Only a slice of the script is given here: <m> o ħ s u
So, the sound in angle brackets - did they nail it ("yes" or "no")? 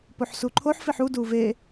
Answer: no